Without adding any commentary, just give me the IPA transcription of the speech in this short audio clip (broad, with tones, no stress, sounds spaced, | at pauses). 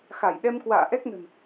x a˧˩ j ɗ ɛ˧ m k w a̰ː˧˨ ʔ ɛ˦˥ k̚ n ə̤˨˩ n